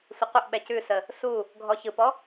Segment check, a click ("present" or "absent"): absent